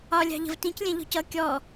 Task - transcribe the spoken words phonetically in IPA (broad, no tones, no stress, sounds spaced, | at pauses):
ɒ lʲ ɑ̤ ʎ ə̤ v t ĩ c lʲ ɛ̃ ʎ ɔ̤ c ʌ kʲ ɔ